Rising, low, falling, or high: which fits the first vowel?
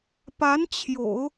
rising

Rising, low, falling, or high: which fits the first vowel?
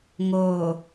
low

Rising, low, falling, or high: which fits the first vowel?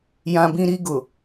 high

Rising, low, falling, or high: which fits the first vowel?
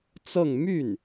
falling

